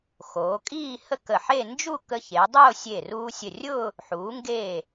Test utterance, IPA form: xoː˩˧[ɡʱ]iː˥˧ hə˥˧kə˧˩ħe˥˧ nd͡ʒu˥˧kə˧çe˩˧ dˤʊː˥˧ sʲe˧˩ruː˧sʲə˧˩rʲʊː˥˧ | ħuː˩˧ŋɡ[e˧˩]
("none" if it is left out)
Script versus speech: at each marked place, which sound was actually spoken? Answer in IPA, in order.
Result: kʼ, eː˧˩

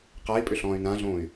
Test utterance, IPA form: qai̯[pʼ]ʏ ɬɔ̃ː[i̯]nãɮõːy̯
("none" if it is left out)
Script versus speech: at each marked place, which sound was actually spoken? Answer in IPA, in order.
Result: pʼ, y̯

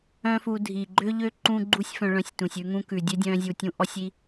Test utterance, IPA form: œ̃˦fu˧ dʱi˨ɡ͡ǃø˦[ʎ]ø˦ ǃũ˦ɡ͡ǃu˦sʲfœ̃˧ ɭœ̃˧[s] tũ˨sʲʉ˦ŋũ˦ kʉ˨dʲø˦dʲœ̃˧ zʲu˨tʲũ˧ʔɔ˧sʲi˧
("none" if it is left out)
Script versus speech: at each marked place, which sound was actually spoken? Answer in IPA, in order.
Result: ʎ, sʲ

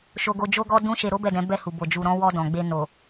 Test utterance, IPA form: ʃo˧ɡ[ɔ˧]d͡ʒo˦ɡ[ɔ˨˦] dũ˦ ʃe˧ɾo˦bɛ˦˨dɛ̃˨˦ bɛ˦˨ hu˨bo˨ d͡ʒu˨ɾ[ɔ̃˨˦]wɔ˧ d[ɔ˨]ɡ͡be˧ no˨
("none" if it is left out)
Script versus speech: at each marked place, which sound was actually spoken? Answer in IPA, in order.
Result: o˧, ɔ˦, ɔ̃˨˦, ɔ̃˨

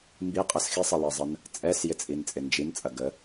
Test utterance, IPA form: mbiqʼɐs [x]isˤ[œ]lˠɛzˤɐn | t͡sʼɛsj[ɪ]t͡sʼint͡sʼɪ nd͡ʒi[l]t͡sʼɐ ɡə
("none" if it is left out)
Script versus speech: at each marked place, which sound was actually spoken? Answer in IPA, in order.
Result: x, ə, ɪ, n

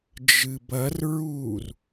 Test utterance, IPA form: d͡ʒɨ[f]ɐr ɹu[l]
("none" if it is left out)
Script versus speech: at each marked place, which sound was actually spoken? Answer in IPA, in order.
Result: b, r

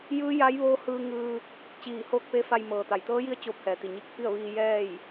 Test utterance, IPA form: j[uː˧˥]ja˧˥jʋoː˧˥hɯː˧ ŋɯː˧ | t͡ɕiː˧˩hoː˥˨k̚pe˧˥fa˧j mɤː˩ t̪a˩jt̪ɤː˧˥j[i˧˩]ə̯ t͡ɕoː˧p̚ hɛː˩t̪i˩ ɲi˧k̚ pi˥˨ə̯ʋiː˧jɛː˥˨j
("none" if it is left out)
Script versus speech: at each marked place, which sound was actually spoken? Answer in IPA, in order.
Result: ɯː˧˥, i˧˥

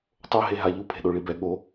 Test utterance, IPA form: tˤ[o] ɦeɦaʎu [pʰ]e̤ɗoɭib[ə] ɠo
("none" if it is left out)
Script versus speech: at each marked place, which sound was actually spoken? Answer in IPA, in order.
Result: o, pʰ, ɛ

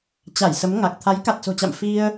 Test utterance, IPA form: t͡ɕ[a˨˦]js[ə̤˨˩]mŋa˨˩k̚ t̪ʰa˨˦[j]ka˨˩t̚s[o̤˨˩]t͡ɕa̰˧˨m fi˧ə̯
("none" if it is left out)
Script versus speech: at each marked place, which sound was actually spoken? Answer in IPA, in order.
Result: a˧˩, ə˨˦, j, o̤˨˩

